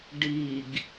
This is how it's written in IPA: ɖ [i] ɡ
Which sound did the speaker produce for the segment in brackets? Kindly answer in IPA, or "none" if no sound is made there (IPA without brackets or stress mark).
i